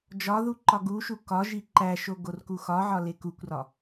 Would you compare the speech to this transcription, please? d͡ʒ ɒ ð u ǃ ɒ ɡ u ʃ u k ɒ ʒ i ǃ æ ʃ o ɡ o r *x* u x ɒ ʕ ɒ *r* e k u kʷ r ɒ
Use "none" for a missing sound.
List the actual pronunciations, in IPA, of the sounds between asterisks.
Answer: k, l

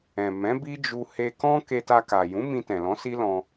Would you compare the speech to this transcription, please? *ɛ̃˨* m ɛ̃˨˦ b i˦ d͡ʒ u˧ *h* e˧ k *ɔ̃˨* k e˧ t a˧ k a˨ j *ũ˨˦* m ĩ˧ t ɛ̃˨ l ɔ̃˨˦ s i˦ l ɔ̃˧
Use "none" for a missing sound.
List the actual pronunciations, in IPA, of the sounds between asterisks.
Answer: ɛ̃˨, h, ɔ̃˦, ũ˨˦

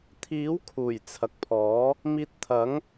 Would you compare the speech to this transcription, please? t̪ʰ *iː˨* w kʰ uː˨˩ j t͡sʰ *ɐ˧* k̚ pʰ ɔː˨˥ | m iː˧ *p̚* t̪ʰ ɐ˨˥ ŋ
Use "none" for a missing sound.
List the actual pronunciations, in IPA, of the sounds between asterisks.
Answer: iː˨˥, ɐ˨, t̚

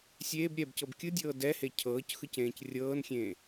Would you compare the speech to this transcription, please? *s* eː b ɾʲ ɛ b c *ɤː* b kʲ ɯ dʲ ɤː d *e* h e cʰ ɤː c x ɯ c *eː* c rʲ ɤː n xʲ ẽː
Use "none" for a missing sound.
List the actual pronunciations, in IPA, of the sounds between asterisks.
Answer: sʲ, ɤ, ɛ, ẽː

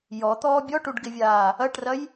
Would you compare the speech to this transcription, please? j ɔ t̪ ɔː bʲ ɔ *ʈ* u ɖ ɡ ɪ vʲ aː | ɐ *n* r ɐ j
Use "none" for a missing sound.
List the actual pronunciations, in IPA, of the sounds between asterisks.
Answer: ʈ, ʈ

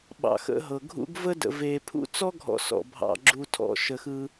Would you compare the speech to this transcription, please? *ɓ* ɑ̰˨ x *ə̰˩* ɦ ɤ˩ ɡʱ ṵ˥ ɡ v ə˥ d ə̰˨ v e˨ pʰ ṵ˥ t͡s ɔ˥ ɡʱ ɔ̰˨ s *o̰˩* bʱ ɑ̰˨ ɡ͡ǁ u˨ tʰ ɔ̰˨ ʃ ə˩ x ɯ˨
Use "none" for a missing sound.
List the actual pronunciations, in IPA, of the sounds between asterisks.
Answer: ɓ, ə̰˦, ɔ̰˩

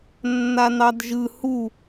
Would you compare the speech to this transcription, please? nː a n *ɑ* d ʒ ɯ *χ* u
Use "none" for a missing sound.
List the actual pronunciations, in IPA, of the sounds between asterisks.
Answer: ɑ, h

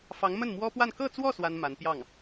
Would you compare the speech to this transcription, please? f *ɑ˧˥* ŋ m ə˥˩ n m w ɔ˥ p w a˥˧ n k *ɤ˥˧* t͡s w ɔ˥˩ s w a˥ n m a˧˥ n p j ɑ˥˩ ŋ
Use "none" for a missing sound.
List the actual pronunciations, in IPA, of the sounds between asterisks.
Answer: ɑ˧˥, ɤ˥˧

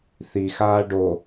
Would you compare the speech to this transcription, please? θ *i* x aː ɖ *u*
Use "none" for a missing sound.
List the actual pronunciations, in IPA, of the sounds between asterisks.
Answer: i, o

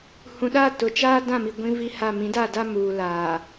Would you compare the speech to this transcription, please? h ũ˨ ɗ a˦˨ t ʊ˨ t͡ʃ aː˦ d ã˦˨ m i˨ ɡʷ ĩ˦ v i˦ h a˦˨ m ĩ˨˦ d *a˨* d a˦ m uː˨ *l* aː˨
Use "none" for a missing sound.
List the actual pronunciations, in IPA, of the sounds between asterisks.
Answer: a˦˨, l

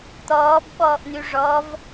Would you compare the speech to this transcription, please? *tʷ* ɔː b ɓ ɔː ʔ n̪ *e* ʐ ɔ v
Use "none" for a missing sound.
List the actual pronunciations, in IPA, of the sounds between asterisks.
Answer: t̪, y

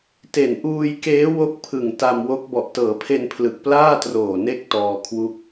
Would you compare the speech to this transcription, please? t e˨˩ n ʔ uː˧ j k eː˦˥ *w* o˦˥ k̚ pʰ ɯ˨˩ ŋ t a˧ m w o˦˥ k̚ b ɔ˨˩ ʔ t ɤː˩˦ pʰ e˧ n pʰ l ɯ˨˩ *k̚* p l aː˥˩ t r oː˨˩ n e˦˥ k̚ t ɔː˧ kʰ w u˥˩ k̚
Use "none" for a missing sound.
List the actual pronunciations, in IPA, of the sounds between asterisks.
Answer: w, k̚

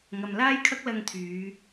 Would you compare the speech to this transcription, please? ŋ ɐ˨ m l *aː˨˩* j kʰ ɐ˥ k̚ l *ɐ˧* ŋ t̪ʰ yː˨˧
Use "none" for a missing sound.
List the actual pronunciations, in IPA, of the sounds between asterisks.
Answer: aː˥, ɐ˧

